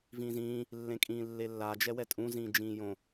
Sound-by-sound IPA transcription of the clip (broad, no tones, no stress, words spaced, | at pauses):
vĩːzĩː | lːẽkʼĩːlːelːa d͡ʒɛwɛtʼũ zĩːd͡ʒĩːjõ